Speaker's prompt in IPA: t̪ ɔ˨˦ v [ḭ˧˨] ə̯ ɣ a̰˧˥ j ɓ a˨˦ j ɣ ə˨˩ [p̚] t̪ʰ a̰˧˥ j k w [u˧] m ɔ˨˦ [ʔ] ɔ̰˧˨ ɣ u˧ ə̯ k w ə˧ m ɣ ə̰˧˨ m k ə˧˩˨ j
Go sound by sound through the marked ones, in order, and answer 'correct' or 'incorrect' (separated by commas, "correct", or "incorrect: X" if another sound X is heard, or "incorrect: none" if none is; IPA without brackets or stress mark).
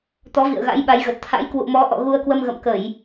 correct, incorrect: t̚, incorrect: ṵ˧˨, correct